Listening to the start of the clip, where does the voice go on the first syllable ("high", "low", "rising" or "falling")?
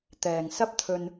low